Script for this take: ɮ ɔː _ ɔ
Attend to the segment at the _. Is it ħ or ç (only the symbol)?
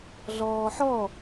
ħ